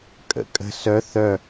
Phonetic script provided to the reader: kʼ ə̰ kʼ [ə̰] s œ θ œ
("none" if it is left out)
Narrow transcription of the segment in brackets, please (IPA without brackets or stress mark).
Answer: ə̤